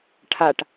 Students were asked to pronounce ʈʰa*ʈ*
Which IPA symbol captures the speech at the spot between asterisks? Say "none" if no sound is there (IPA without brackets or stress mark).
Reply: ʈ